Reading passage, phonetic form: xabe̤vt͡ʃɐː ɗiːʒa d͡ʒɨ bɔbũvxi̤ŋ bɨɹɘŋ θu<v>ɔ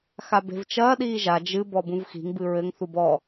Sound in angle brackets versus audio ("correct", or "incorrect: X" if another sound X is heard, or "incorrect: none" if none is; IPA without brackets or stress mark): incorrect: b